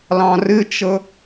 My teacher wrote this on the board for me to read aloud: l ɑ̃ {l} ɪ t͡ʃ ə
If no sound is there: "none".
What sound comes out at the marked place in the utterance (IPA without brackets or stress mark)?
r